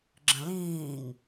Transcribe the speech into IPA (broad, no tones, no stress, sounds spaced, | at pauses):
ɡ͡ǁ ə̃ l ĩː ŋ